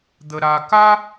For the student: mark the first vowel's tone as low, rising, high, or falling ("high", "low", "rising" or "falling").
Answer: low